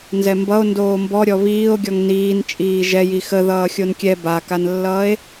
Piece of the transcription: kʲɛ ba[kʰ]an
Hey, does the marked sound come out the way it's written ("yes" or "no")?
no